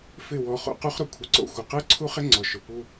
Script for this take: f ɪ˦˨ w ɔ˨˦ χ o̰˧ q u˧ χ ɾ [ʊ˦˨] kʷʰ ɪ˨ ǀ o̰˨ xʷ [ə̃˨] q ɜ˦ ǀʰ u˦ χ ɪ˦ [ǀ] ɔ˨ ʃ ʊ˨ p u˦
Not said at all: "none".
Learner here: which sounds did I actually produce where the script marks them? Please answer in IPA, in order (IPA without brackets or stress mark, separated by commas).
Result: ʊ˨, ə˨, ŋ͡ǀ